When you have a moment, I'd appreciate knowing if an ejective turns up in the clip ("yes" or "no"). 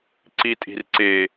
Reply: yes